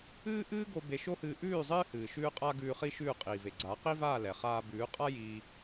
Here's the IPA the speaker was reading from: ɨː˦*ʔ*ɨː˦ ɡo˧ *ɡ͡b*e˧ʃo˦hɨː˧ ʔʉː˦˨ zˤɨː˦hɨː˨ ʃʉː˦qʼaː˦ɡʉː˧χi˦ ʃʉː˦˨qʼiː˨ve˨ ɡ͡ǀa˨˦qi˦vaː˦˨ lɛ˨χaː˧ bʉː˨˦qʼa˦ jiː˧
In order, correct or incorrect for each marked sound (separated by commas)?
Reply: correct, incorrect